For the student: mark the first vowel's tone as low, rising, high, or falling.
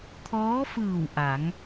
rising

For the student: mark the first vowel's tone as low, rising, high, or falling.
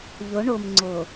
rising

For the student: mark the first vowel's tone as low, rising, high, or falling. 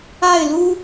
falling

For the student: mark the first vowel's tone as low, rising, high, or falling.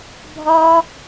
high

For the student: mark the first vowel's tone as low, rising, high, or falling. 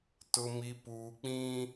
low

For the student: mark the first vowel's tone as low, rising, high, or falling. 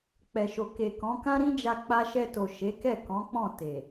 low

